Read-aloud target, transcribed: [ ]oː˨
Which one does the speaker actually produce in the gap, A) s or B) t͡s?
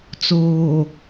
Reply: B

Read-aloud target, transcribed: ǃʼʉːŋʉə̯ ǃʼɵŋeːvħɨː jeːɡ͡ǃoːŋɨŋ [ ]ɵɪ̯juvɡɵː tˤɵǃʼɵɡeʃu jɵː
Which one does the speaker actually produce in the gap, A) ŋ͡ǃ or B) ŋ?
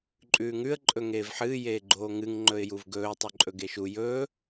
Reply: A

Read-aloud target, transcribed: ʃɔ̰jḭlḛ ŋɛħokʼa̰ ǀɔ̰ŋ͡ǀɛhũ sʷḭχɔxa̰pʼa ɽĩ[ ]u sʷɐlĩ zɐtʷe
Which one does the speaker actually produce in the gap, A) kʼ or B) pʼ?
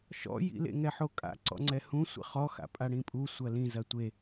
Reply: B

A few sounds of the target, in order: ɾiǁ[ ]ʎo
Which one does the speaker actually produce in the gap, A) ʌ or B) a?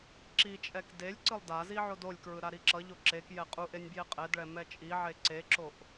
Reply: A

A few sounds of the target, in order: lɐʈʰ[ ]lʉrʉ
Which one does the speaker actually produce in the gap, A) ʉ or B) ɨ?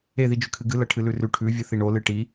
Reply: B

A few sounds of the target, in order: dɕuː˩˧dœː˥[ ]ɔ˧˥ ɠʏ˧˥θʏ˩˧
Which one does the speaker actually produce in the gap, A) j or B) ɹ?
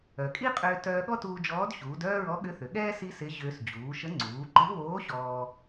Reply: B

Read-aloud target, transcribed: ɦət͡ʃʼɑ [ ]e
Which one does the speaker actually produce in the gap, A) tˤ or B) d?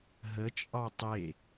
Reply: A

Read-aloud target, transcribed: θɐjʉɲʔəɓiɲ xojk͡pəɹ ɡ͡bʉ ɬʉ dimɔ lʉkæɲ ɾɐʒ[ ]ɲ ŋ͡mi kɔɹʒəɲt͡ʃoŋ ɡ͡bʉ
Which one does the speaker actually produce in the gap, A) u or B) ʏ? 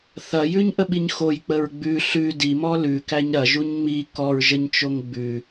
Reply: A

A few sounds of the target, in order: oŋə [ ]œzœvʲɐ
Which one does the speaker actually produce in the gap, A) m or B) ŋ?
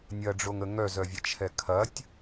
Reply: B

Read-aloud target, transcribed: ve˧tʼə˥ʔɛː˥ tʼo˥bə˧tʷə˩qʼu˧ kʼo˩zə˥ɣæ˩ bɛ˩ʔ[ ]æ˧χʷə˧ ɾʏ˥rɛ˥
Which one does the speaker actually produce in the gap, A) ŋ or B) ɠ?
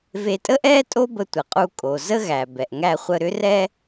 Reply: A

